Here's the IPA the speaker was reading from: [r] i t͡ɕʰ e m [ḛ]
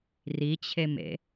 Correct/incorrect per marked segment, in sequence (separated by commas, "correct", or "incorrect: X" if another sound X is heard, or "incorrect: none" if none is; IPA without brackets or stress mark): correct, correct